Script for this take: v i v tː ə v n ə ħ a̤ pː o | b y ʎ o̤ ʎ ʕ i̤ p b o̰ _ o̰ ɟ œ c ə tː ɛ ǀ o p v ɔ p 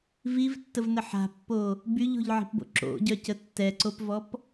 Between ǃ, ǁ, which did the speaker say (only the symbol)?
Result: ǁ